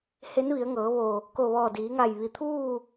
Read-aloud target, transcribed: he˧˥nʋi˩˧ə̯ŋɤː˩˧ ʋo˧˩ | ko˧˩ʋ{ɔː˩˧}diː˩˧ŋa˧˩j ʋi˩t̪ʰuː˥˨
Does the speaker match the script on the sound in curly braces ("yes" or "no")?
no